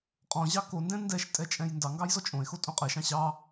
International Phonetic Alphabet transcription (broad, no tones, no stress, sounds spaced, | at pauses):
qʼ ɔ̃ ʑ ɑ k o n d ɛ̃ n d ɛ ʃ tʼ ɛ t͡ʃʼ ɛ̃ j n d ɑ ŋ ɡ ɑ j z ɔ t͡ʃʼ õ e̯ x o tʼ õ qʼ ɛ ʃ ɑ̃ ɕ ɑ